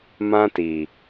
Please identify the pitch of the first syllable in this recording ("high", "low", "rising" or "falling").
high